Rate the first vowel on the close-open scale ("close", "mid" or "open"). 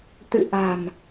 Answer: close